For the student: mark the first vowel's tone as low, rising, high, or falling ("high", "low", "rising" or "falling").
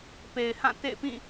low